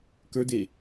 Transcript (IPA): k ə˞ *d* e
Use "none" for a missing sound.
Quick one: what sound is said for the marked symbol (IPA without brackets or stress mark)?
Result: d